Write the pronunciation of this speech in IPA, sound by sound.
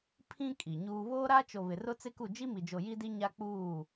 pʰĩ˦ kʼi˨ɲuː˦ βoː˦ɾa˦t͡ʃo˨ βɪ˨rʊ˦t͡sɪ˦ku˦˨ d͡ʒi˦mi˨d͡ʒo˨ ji˦di˦ɲa˦ k͡puː˦˨

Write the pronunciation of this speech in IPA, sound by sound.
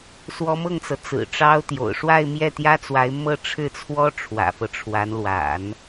swɔ˧˥mɤ˥˩ŋt͡sɤ˩ t͡sɹ̩˨˩ʈ͡ʂɑ˥ʊ̯t̪jo̰˨˩ʊ̯ ʂwa˥˧ɪ̯mjɛ˥˩t̪jä˥t͡swa˧˥ɪ̯ mɤ˥˧ʈ͡ʂʰɻ̩˥˩t͡sʰwɔ˥ ʈ͡ʂʰwä̰˨˩fɤ˦ʈ͡ʂʰwa˧˥n lwa̰˨˩˦n

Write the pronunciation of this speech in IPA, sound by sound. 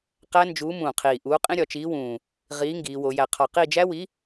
qæ˦˥nd͡ʒuː˨˥ mũː˨˩qʰiː˨˩ ʔuː˨˥qʼĩ˦˥ ɾʲɒ˩˧t͡ʃiː˨˥wũː˨˩ | ʁiː˨˥ŋɡiː˩˧wo˩˧jæ˨˩ qʰɒ˨˩qi˦˨d͡ʒæ˦˥wi˨˥

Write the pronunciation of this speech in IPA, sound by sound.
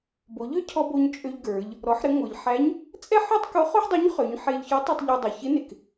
bo˩˧ ʎø˥cʰɔ˧ bo˧ɲ t͡ʃʼø˧ʎɡə˞˩˧ʎ | ɾɔ˩˧ħɾɪ˩˧ ŋʷə˞˩ʎħæ˧˥ɲ | t͡sʼɛ˥ħø˥tˤko˧˥ χo˥ħdˤo˧˥ɲ χø˩˧ɲ ħe˧ʎçɔ˧˥ tˤɛ˧tˤʎɔ˧dˤo˩˧ çɪ˧˥nɪ˩k

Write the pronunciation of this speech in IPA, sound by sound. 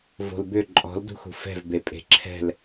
vo̤lbʏ ǃʼɔ̤ldṳxṳ fɛ̤vbepʼe̤ ǁʰɛ̤l

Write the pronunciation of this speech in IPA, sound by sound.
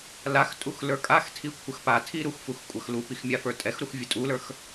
laxtʼux lə˞kʼaxtʰi kʷʰəxpatʰi ɾuxfux kʷʼɐxlupix mʲafə˞tʼɛxɾux vʲətʼulə˞x

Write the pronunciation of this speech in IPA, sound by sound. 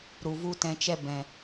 ɾu˨vu˦tɛ̃˧t͡ʃɛ˦ bɛ̃˨

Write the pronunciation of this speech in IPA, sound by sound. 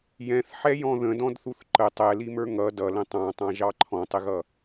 jɛ̃θħɛjɔ̃ ðə̃dɔ̃dθuθ ǃə tˤɛlimə˞ ŋʌ dʌlə̃ tˤɑ̃tˤɑ̃ʒɑ ǃʰɔ̃tˤɪɣʌ

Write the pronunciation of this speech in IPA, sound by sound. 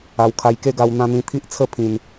a˧wkʰa˧j ke˥˧ɡa˧w n̪ã˧n̪ĩ˧ t̪ʰi˦ʔt͡sʰə˦ pʰĩ˧n

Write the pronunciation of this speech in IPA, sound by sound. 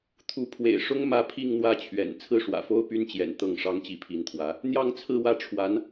t̪ʰu˧˥pʰwḛ˨˩ɪ̯ʂʊ˥ŋ mä˥˧pʰi˥˧ŋn̪wä˥˩t͡ɕʰɥɛ̰˨˩n t͡sʰɹ̩˥˩ʂwä̰˨˩fo˥ʊ̯ py˥nt͡ɕjɛ̰˨˩n t̪ɤ˥˩ŋ ʂɑ˥ŋt͡ɕi˧˥pʰi˧˥nt̪ʰwä˧˥ | n̪jɑ˥˧ŋt͡sʰɹ̩˥˧wä˥˩ ʈ͡ʂʰwa˧˥n

